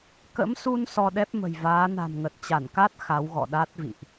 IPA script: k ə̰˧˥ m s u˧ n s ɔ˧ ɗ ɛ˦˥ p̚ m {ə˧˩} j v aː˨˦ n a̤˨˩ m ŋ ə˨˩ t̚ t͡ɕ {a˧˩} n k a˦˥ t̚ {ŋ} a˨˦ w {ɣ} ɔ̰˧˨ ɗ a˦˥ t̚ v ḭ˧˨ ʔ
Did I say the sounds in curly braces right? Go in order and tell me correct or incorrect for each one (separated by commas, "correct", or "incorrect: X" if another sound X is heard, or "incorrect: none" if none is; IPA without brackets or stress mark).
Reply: incorrect: ə̤˨˩, correct, incorrect: x, correct